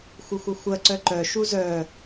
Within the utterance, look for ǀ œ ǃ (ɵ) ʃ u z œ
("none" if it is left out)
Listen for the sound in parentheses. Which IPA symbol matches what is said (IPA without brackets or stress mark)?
œ